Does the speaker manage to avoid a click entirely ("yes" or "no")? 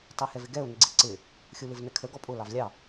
no